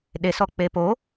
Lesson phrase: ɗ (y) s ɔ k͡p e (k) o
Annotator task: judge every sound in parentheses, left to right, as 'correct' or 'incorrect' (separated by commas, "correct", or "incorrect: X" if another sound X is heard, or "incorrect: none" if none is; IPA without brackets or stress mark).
incorrect: e, incorrect: p